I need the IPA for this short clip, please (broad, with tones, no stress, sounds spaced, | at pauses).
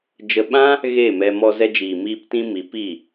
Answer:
d͡ʒ ə˧ ɓ ã˦ | ɣ e˦˨ m ɛ˧ m ɔ˧ z ɛ˧ d͡ʒ iː˨ m iː˧ p t ĩ˧ m i˨˦ p i˦˨